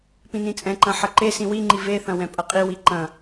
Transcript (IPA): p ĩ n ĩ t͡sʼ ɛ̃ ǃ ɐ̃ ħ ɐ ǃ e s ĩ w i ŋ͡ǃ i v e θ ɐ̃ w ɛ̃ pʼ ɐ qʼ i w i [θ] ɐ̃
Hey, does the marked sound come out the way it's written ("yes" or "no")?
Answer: no